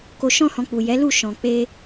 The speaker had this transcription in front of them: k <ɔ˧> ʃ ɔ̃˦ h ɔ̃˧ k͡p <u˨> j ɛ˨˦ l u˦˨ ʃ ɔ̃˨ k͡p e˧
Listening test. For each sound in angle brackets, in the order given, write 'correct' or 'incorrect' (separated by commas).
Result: incorrect, correct